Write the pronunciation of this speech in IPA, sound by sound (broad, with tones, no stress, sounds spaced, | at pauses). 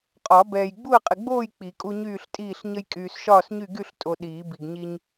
qʼ ɒ˨˩˦ b ɛː˨ j ɡ͡b u˥˨ ə̯ qʼ ɪ˨ ɡ͡b oː˥˨ j k͡p i˨˩˦ kʼ u˦ ɲ yː˥˨ ɬ tʼ iː˥˨ ɬ ɲ ə˦ j kʼ yː˨ s ʃ ɒː˥˨ s ɲ y˥˨ ɡ y˥˨ ɬ tʼ o˨ ɗ iː˨˩˦ b i˨ ɡ ɲ i˦ ɲ